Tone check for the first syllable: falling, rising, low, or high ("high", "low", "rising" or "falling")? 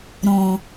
low